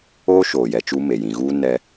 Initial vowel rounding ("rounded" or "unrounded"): rounded